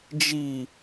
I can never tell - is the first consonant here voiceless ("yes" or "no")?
no